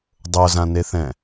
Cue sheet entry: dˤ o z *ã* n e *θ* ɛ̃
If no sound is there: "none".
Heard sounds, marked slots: ã, θ

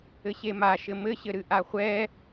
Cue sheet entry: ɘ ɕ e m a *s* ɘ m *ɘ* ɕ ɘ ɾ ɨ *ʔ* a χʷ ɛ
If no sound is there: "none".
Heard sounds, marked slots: ʃ, ɘ, ʔ

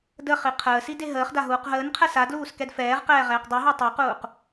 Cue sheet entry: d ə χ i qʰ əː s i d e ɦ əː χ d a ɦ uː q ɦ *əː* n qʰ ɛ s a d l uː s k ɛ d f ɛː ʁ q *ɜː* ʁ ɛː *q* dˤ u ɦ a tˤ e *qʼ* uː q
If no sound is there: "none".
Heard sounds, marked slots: əː, ɛː, q, q

